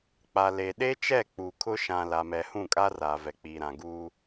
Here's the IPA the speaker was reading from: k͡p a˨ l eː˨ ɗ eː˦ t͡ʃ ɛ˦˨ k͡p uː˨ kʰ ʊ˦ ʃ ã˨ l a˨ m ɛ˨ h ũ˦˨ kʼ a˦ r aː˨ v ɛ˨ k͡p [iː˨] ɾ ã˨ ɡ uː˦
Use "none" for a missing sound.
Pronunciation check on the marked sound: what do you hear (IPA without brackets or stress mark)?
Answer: iː˨